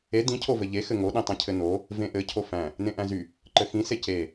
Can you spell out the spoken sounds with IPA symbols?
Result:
e d ĩ cʰ o v ɘ ʎ e x ɘ ŋ o ɗ ĩ tˤ ĩ cʰ ɘ n o | v ẽ ʔ ɘ cʰ o f æ̃ | n ẽ ʔ æ̃ z y | ǃ ɘ x ĩ s e c e

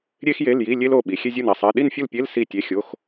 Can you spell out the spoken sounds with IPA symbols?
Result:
ɾʲ e˥ x j e˧˥˧ l j i˧˥˧ lʲ e˥ l o˩˧˩ ɓ i˩˧ xʲ e˥ zʲ u˥˨ n i˩˧˩ sˤ e˧˥˧ ɗ i˥˨ n fʲ u˥˨ l pʲ e˧˥˧ l s i˥˨ tʲ e˧˥˧ xʲ o˧˥˧ x

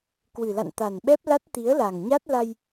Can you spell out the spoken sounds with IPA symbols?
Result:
k w ɨ˨˩ l a̰˧˨ n t̪ a˨˩ n ɓ ɛ˦˥ p̚ l a˦˥ t̚ t̪ i˨˦ ə̯ l a˨˩ ŋ ɲ a˦˥ t̚ l a˧ j

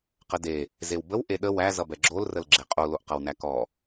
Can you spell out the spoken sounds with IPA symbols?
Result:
q ə d e | z e w b ə w ʔ e ɗ ə w æ z ʌ b ɛ ɡ͡ǁ o l r ə l ɡ͡ǁ e qʼ o l o ʔ q ʌ w n æ k ɔ

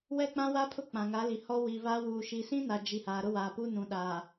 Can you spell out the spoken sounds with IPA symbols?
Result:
w ɛ˦ k͡p ã˦ w a˦ pʰ ʊ˦ k͡p ã˨ ŋ a˨˦ l i˨ h ɔ˦ w iː˨ β aː˦ w uː˨ ʃ i˨ s ĩ˦ n a˨ d͡ʒ i˨ h aː˨ ɾ ʊ˦ w aː˨ p u˦ n ũ˨ ɗ aː˨

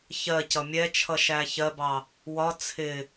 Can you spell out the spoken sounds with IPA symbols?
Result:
ç ɜ c ʌ mʲ ɛ t͡ʃʰ ʌ ʃ æ ç ɜ b ɑ | w ɒ t͡sʰ ɪ

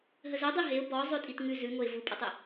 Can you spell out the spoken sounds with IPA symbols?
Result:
ɦ ə z ə dˤ i ɦ e ʊ̯ b ɔ zˤ ʉ tʼ i t ŋ ʉ z ʉ ŋ o ɪ̯ v u pʼ ə tˤ e

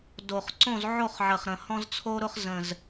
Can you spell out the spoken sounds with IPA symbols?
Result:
d o˨˩ χ ǀ õ˥˨ z ʕ o˥˨ χ ʕ ə˨˩ χ ɾ ə̃˨˩ h ɔ̃˦ z t͡sʰ o˦ ɾ ʊ˦ χ z ə̃˨˩ z

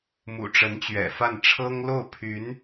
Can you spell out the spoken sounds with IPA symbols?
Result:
m ṵ˨˩ ʈ͡ʂ ə˧˥ n t͡ɕ ɥ ɛ̰˨˩ f a˥˩ n ʈ͡ʂʰ ɤ˥ ŋ l o˥˩ ʊ̯ pʰ y˧˥ n

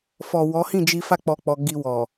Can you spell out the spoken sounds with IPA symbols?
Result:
f ɔ˨ w ɔ˨˦ h ĩ˦˨ d͡ʒ i˧ f a˦ k͡p ɔ˧ k͡p ɔ˧ ɡ i˧ w ɔ˨

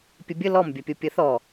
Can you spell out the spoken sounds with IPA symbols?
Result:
pʲ ə bʲ ə l ɔ m bʲ ɐ pʲ o pʲ ə θ ɔ

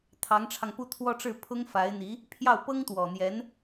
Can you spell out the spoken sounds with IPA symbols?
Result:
t̪ʰ ɑ˧˥ ŋ ʈ͡ʂʰ ɑ˧ ŋ p u˥˧ t̪ʰ w ɔ˥˧ ʈ͡ʂ ɻ̩˥˩ pʰ ʊ˥ ŋ f a˧˥ ɪ̯ n̪ i˧˥ | pʰ j ɑ˥˩ ʊ̯ p ɤ˥ ŋ t̪ w ɔ˨˩ n̪ j ɛ˧˥ n

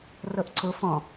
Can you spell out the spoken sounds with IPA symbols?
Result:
r ɤ ʔ ǀ ʊ f ɔ̃

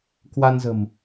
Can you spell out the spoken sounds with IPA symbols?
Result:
k w a˧ n z ə̤˨˩ m

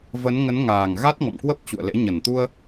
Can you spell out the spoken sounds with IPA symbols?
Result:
v ə˨˦ n ŋ ə˨˦ n ŋ aː˨˩ ŋ ɣ a˦˥ t̚ ŋ ɔ̰˧˨ m k w ə˦˥ p̚ t͡ɕ ṵ˧˨ ə̯ l ḛ˧˥ ɲ ə˨˩ n t̪ u˧ ə̯

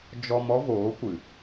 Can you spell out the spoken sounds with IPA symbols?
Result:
d͡ʒ ɔ˧ m ɔ˦ v oː˨˦ kʷ ɨ˨

